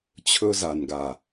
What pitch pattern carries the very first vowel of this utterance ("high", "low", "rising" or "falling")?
high